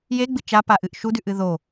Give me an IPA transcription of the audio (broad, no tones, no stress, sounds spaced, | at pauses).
j e ɡ͡b ɨ t͡ʃ a p a ʔ ɨ ʔ ʃ u d ʉ ʔ ɨ ð o